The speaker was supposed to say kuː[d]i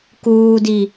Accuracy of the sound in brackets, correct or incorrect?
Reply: correct